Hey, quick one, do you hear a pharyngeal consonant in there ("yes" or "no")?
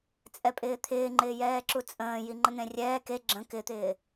no